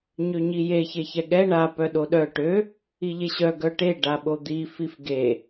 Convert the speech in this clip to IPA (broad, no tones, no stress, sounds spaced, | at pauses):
ɲ ø ɲ i j e ç e ç ɛ ɠ ɛ ɳ a p œ ɗ o ɗ œ ʈ ø | i ʎ e ɕ œ ɡ œ ʈ e ɖ a ɓ o d̪ i f i f ɡ e